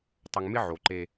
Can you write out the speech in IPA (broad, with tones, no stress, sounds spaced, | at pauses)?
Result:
tˤ ʊ˨ ŋ m ɪ˦ ʕ o˨ ǃ e˦